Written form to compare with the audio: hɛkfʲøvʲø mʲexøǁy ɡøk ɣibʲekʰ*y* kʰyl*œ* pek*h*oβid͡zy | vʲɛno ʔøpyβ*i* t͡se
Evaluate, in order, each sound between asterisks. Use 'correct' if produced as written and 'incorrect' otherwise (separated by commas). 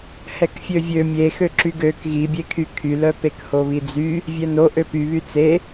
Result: correct, correct, correct, incorrect